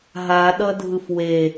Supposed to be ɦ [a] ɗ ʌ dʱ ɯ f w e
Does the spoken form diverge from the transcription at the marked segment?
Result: no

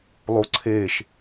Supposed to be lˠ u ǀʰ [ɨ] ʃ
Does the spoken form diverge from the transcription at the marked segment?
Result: yes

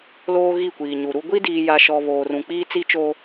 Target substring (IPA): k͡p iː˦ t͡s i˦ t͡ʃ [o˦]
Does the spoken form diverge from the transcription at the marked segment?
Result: no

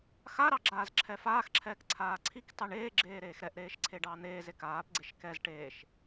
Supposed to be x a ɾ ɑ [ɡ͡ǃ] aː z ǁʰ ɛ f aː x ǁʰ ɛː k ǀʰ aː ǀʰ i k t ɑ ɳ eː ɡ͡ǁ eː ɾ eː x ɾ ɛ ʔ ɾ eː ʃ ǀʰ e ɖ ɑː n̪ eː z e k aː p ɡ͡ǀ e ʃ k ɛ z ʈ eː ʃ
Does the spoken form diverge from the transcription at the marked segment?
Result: yes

